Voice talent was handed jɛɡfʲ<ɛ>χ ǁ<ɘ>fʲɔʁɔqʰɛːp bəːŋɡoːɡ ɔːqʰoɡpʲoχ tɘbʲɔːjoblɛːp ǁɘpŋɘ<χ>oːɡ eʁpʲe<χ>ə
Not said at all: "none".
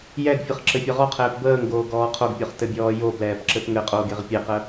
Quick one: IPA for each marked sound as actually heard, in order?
ɘ, ɘ, qʼ, q

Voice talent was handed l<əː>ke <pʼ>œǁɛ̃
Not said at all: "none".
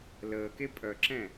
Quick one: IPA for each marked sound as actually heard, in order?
əː, pʼ

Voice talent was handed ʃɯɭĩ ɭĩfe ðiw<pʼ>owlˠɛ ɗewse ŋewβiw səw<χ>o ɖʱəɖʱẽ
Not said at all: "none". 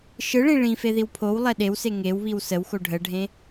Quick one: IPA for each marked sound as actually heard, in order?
pʰ, x

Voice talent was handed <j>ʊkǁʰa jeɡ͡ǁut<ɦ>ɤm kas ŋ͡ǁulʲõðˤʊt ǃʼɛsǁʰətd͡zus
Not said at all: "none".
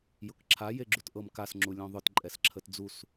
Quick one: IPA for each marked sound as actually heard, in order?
j, ʔ

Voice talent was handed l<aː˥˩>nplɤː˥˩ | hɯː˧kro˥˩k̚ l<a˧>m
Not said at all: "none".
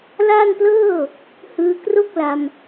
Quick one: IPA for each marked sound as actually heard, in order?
aː˥˩, a˧

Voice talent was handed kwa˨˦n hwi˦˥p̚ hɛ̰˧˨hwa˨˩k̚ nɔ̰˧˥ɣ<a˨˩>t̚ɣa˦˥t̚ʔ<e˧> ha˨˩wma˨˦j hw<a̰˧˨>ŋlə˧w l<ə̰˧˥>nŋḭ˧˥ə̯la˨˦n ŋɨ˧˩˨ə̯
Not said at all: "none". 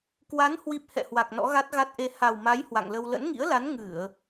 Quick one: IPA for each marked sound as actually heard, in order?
a˦˥, e˧, a̰˧˨, ə̰˧˥

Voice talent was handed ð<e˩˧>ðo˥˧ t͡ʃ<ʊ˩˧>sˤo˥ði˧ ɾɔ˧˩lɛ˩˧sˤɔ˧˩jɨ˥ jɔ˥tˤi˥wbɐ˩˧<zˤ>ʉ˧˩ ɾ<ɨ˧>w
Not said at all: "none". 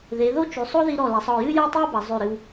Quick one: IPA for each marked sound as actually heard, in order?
e˩˧, ʉ˩˧, zˤ, ɨ˧

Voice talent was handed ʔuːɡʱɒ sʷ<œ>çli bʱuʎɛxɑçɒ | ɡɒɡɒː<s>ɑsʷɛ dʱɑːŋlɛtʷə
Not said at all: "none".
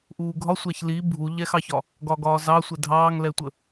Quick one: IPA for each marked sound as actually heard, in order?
æ, z

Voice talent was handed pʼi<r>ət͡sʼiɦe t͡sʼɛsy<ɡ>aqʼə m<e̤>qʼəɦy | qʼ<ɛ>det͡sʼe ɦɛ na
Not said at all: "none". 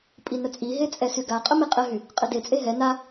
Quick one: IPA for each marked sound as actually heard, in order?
n, ɡ, e, ə

